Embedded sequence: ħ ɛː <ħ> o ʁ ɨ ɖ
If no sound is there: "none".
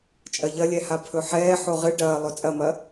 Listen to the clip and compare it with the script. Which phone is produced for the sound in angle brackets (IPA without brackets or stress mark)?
ħ